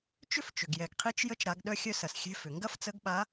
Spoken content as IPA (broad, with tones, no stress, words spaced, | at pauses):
t͡ʃʏ˥ft͡ʃʏ˩ɡ jɛ˩ɡqʰi˧˥t͡ʃ jə˧˥t͡ʃɾa˩˧ɡɗœ˧xʲœ˧ sɐ˩sxʲɛ̤˧˥fʏ˩ ŋɡɐ˥ft͡sə˧˥ɡɓa˧˥